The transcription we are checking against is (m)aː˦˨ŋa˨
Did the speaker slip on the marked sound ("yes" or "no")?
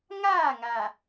yes